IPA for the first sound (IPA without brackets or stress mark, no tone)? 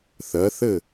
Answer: θ